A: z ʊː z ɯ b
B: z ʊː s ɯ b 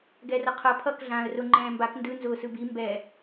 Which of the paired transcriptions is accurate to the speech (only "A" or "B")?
B